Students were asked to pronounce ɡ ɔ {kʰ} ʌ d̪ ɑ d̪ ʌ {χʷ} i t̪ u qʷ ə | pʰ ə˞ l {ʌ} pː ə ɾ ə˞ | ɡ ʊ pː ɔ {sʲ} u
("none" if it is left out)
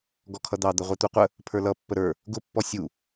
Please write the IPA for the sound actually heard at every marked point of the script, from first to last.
kʰ, ʁʷ, ʌ, sʲ

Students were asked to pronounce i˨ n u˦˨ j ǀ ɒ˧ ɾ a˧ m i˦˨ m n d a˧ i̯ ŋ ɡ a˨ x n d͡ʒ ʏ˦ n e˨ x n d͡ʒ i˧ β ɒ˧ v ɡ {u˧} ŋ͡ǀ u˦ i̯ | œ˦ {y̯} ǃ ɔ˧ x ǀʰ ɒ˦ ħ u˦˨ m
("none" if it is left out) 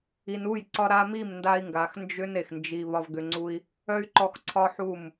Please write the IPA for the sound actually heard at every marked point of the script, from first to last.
ʏ˧, y̯

